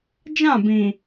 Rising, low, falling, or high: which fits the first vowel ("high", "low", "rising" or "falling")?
falling